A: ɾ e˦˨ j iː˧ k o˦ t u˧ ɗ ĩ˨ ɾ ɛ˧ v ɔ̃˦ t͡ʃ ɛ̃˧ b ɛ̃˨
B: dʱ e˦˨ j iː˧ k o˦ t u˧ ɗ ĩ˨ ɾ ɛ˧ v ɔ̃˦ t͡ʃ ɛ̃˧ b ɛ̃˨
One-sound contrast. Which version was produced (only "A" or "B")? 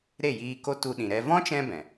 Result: A